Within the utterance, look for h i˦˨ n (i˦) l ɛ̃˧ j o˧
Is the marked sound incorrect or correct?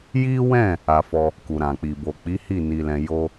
incorrect